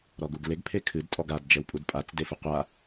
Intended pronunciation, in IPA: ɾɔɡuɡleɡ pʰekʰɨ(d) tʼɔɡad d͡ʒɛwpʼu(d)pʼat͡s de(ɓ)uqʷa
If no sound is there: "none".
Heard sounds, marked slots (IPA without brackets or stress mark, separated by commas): d, d, f